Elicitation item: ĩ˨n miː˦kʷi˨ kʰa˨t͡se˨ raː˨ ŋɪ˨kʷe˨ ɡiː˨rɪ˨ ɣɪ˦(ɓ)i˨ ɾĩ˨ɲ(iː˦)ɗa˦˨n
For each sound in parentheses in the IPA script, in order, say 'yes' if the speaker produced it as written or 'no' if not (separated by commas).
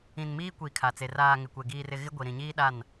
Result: no, yes